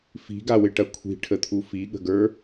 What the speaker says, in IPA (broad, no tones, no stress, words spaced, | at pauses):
fi̤ɡawɪʈɐ kʷʰi̤ʈʰət̪ʰu fiɠə̤ɡə˞